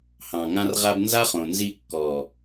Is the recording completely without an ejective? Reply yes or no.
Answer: yes